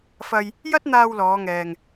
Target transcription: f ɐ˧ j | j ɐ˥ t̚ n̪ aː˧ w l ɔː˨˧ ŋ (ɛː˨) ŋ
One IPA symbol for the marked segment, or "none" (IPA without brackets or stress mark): ɛː˨